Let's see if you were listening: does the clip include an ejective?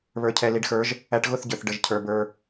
no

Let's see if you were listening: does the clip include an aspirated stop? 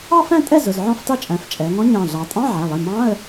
no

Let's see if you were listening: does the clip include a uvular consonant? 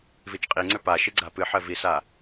yes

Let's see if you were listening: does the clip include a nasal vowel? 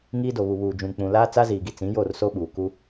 yes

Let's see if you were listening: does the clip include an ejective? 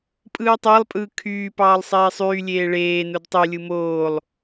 yes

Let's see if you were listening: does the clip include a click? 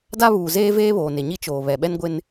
no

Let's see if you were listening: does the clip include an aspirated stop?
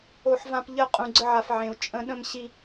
no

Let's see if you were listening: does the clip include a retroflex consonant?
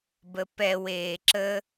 no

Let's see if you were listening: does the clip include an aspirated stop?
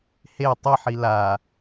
no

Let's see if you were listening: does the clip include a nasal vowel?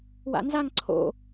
no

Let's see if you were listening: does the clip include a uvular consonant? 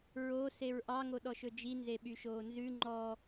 no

